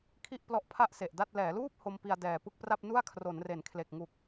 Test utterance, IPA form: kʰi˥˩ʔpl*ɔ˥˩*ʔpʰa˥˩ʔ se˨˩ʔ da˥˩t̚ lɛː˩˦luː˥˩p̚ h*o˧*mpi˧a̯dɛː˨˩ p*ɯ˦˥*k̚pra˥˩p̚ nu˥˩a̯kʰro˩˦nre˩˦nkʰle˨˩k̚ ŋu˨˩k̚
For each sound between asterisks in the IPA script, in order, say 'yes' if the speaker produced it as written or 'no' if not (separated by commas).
no, yes, no